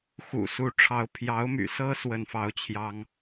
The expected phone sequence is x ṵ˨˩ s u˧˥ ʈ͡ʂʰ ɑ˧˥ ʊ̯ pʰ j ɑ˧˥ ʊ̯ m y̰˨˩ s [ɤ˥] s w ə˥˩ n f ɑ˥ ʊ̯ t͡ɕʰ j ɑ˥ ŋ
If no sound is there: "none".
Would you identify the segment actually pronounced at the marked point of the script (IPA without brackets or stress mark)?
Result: ɤ˥